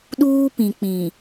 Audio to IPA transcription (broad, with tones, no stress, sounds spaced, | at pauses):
ɗ uː˦ p ĩ˨ k͡p ĩ˨